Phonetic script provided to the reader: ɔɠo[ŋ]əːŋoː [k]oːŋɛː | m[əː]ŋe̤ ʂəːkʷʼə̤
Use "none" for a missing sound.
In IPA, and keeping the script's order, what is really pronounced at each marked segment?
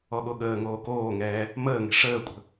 ɠ, k, əː

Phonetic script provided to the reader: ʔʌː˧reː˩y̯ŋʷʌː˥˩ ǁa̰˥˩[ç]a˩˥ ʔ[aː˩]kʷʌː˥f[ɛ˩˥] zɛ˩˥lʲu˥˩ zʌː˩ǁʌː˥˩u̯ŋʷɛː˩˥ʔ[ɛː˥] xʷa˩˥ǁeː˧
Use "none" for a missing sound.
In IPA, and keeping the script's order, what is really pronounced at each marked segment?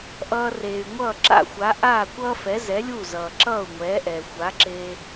xʷ, aː˥˩, ɛ˩˥, ɛː˩

